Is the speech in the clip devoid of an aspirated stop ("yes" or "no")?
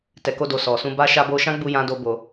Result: yes